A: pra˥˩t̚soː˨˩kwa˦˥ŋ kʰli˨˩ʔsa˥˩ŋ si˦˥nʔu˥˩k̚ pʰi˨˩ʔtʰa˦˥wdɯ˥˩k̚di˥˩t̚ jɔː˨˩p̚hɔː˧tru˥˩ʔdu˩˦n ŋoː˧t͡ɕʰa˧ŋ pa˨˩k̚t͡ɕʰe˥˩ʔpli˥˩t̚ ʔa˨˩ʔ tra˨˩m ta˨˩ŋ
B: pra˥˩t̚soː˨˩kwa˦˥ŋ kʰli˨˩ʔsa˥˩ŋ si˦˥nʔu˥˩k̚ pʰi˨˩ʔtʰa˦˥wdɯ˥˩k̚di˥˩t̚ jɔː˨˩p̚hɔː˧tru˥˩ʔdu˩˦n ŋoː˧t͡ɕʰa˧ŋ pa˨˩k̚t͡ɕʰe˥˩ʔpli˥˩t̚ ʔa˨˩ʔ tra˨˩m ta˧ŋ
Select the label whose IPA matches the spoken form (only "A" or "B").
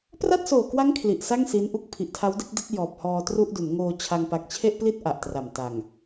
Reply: A